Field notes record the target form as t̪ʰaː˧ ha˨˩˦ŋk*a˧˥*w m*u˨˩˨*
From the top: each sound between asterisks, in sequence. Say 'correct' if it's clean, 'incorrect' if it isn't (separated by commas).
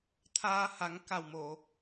incorrect, incorrect